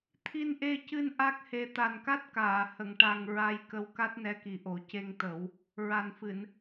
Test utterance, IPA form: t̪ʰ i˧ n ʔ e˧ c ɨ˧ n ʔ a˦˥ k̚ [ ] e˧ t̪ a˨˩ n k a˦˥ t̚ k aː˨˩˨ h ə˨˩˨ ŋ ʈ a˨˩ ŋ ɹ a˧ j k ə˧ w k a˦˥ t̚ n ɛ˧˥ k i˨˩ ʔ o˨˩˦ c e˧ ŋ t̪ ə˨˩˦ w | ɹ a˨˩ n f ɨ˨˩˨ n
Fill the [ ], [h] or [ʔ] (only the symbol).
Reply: h